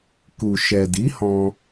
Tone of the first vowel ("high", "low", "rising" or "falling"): low